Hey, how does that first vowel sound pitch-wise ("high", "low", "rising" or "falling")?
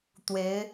rising